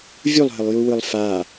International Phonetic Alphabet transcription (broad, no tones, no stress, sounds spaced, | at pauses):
vʲ u lˠ ɦ ə lˠ j u w ɯ lˠ f a